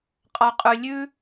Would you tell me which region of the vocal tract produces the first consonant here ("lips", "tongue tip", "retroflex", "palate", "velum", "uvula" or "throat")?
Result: uvula